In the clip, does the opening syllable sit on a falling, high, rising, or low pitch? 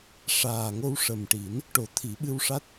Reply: low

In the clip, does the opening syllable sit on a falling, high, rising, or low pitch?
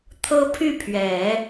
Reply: high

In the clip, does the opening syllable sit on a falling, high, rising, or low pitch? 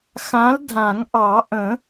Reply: rising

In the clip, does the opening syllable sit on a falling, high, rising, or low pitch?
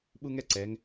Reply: high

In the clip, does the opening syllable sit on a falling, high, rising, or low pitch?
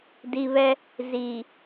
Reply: low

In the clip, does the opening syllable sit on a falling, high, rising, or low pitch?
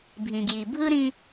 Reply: low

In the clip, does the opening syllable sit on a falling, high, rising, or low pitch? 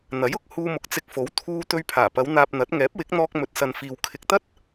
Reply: rising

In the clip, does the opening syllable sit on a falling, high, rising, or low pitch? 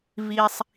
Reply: low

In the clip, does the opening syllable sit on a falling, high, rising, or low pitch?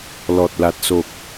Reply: low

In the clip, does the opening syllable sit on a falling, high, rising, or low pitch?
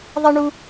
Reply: high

